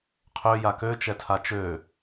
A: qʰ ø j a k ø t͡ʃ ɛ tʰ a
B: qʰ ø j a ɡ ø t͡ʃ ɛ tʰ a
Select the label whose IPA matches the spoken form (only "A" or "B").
A